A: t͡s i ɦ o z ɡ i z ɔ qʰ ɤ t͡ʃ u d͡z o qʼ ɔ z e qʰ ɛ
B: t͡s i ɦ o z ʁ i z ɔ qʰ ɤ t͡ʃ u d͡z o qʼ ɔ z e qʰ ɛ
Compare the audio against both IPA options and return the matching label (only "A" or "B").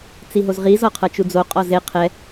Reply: B